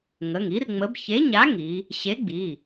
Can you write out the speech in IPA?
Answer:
ŋə˩˧˩ŋi˨˥rŋ͡mə˨˥b çe˨˥ɲa˨˥ ŋi˨˥ | ɕe˨˥ɡ͡bi˩˧˩

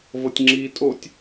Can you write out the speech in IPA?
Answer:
vɤtʲŋ͡ǁiːtʼotʲ

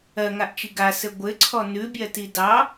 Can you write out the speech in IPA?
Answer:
ɜŋaʔt͡ʃi ɡasɘ ɡʷɘǀʰɔ nʉbʲɜti dɑ

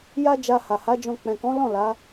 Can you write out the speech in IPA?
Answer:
ja˧ d͡ʒa˧ha˨ha˨˦d͡ʒɔ̃˧ k͡pɛ̃˨kɔ̃˨˦lɔ̃˦˨ la˨˦

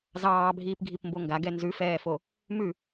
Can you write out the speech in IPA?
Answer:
zɑːbʱiːpɡʱipmbo ŋɡaɡɛ nzʉfɛːfo | mʉ

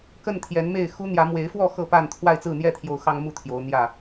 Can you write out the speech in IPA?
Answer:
kə˥˨nt̪ʰjɛ˨˦nme˥˨ɪ̯ xu˦n̪jä˨˦ mwe˨˦ɪ̯fwɔ˥˨ xɤ˥˨pa˥˨n t̪ʰwa˥˨ɪ̯t͡sɹ̩˥˨n̪jɛ˥˨t̪ʰjo˨˦ʊ̯ xɑ˦ŋmu˥˨t̪ʰjo˨˦ʊ̯ n̪jä˥˨

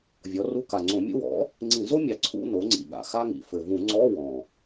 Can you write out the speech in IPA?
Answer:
vʲɔ˩˥ru˧˥˧ ka˨˩ŋ͡ǀõ˧˩˧mʲṵ˥ wɔ̰˩˥ | ŋ͡ǀĩ˧˩˧zo˥mʲɑ˩˥ ǀʰṵ˧˥˧ no˩˥ŋ͡ǀḭ˨˩ɠa̰˨˩ xa˥ŋḭ˨˩ fɘ˨˩vũ˧˩˧ ŋ͡ǀɔ˧˥˧ wɔ̃˨˩

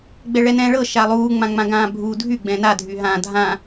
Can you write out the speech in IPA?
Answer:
ɡ͡bɛɭɛnɛ̃ːɭɤ ʃalˠuː ŋ͡mãŋ͡mãɡãːbʱuː dʱy ɡ͡bɛ̃na dʱyɦã dʱã

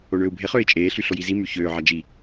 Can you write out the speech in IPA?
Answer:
oɳøːu̯bʱe χøːi̯t͡ʃʼeː ɬyɬojizi myçøː ʕɑd͡ʒi

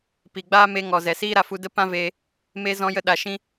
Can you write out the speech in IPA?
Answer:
pi˨ɡ͡baː˦me˧ ŋɔ˨zɛ˨ siː˦ɾa˧fu˧ də˦ pã˦veː˧ | me˦ zɔ̃˧jə˧ɗa˨ ʃĩ˦

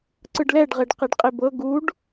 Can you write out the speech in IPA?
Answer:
ǀɯɖlɛɖ ʁeɖqeɖqʼebɤ ɡuɖ

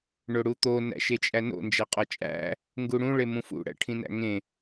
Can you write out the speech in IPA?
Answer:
ɳoɽut̪o næ̰ʃet͡ʃʼæno̰ nd͡ʒæqʼɒt͡ʃʼæ̰ | ŋɡuɽũ ɭemũfṵ ɽæ̰ʈʰĩnæ̰ŋẽ

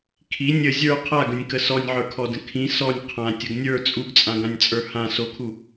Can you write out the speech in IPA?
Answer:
kʰi nʲə zʲə˞ qʰaɡə̃nʲkə sɔnʲʕə˞kʰɔdə̃ kʰĩ sɔnʲ qʰãtʲəɡ nʲə˞ t͡sʼuɡt͡sʼãɡãnʲt͡sʼə˞ hã sokʰu

